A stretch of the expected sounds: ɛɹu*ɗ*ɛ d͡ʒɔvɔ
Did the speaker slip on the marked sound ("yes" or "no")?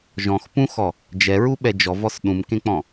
yes